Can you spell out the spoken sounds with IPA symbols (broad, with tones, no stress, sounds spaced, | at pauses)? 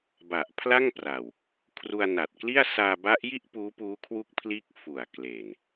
b a˨˩ ʔ pʰ l a˥˩ ŋ p r a˨˩ w | kʰ r u˧ a̯ n a˨˩ t̚ k l i˥˩ a̯ s aː˧ b a˦˥ ʔ j i˥˩ ʔ p uː˦˥ p uː˦˥ kʰ w u˦˥ k̚ pʰ l iː˦˥ k̚ f u˨˩ a̯ k l e˨˩ n